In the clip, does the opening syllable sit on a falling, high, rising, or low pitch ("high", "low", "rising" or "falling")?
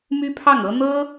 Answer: high